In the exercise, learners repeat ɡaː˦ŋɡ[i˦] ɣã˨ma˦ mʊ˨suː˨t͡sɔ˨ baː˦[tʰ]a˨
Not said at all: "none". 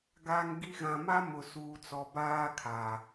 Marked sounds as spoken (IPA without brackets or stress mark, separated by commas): i˦, kʰ